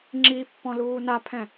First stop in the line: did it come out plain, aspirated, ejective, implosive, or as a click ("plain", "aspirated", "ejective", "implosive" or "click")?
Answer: click